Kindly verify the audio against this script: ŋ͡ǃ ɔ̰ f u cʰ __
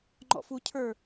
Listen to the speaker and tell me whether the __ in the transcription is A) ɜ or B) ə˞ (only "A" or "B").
B